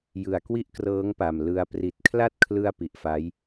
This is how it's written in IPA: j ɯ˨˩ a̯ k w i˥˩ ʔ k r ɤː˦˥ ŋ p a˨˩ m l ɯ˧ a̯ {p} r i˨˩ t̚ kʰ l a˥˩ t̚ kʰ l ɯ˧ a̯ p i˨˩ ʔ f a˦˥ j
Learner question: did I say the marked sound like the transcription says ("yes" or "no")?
yes